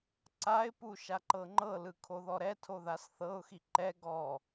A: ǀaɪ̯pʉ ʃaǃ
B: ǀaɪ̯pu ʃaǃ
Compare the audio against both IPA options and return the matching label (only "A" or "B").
B